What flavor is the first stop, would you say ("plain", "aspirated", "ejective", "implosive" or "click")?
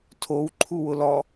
aspirated